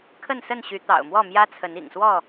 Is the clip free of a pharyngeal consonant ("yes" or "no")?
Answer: yes